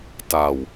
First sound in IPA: t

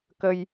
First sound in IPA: k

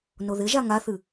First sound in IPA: n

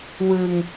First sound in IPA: w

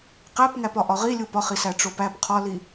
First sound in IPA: q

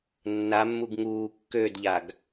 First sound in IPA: nː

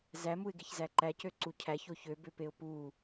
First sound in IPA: z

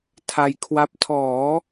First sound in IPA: tʰ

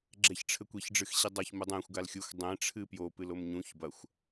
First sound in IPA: ɡ͡ǁ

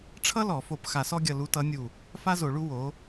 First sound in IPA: ʈ͡ʂʰ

